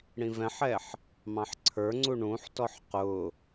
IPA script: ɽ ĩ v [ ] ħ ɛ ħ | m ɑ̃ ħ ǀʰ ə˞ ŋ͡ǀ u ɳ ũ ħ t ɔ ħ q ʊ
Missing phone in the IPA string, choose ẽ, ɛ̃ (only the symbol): ɛ̃